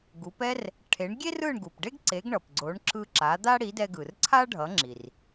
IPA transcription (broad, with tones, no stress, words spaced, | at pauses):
ɡu˩˥pɛ˥r | ʈʰe˩˥ɳ ɡʲe˥rɯ˥˩ɳɡu˩pɖe˥ɡ ǀe˩˥ɡɳʌ˩pɡ͡ǀo˩˥ɳ ǁɯ˧ ǁa˩˥d̪a˥ ɽi˩˥dɛ˧ɡɯ˩r ǀʰa˥ɖʱʌ˩˥ŋ͡ǁi˩r